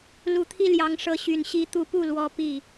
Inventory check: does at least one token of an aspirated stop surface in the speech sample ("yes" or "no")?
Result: yes